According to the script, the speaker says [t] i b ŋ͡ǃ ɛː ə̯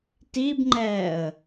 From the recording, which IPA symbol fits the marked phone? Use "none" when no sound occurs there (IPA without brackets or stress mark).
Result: t